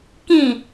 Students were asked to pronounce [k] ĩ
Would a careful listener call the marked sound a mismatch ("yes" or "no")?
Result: no